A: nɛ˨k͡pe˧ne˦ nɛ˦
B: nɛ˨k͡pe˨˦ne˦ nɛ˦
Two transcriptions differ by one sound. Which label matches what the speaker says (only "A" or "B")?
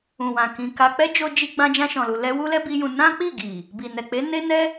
B